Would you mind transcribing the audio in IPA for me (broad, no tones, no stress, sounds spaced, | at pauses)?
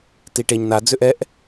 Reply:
t i ʈ e ɲ n a d͡z ʏ ʔ ɛ ʔ